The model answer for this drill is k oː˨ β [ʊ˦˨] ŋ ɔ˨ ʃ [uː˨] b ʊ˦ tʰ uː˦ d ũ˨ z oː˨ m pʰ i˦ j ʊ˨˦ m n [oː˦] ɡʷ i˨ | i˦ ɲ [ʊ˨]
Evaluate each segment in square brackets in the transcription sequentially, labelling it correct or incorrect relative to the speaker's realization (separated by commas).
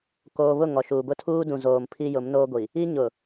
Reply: correct, correct, correct, correct